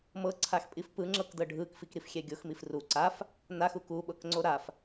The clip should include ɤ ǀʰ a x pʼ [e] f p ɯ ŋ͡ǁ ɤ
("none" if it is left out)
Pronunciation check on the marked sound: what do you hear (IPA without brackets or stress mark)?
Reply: i